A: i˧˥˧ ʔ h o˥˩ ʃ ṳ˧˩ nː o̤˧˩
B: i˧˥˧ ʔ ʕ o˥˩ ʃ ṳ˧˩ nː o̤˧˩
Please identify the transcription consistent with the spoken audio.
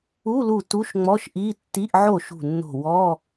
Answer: B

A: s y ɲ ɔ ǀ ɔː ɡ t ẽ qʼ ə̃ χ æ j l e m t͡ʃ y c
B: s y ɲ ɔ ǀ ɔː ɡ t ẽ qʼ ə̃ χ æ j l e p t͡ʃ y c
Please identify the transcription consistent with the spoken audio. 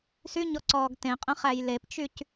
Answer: B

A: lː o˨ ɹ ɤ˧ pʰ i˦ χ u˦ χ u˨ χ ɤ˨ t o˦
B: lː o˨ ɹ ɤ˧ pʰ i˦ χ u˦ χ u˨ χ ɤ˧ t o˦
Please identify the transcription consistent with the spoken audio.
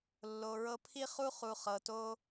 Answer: A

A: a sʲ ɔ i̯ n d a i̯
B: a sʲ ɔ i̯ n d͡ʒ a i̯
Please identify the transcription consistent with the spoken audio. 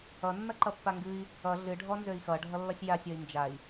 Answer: B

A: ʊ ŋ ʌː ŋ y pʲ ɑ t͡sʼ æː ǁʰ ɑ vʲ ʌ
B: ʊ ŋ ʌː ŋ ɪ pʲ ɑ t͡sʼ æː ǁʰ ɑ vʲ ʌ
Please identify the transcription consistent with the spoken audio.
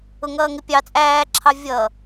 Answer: B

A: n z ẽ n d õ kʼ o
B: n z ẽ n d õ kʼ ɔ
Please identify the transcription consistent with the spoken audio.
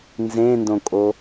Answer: A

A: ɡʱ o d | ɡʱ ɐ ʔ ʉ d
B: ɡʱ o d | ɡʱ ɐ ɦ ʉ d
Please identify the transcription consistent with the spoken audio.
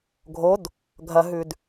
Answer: B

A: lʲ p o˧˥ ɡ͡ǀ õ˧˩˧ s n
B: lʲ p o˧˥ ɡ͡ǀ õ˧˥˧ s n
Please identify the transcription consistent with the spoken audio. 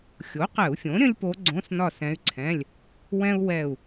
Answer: B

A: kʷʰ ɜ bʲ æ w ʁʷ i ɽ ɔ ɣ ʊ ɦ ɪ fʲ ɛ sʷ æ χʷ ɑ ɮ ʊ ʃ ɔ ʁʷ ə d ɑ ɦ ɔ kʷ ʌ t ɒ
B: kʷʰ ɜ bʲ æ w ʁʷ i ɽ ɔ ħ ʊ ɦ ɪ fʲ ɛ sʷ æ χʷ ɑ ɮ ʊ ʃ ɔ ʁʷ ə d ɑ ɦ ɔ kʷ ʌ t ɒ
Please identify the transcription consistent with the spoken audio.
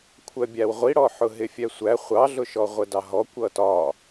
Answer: B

